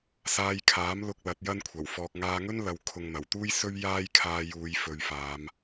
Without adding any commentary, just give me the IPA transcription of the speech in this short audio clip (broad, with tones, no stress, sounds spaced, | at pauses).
s aː˧ j kʰ aː˨˥ m l ʊ˧ k̚ l ɐ˨˥ t̚ j ɐ˥ n kʷʰ ɐ˨˩ w f ɔː˨ k̚ ŋ aː˧ ŋ ɵ˥ n l ɐ˨ w kʰ ʊ˨ ŋ n̪ ɐ˨˩ w t̪ uː˥ j s ɵ˥ ɥ j aː˥ j kʰ aː˧ j uː˨˧ j f ɵ˨˧ ɥ f aː˨˧ m